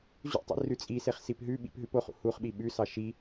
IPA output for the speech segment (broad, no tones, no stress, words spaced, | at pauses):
ʑṵtˤḭ rʉt͡sʼiseχ sipɦʉɓḭp ɦʉpoχṵ huχɓi ɓʉsɑ ʃi